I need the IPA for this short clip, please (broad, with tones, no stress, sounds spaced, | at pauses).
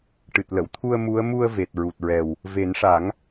ʈ ɨ˨˩ t̚ l ə˨˩˨ w t̪ʰ u˧ ə̯ m u˧˥ ə̯ m u˧ ə̯ v e˨˩ t̚ ɹ u˨˩ t̚ ɹ ɛ˨˩ w | v e˨˩˦ n ʂ a˨˩˦ ŋ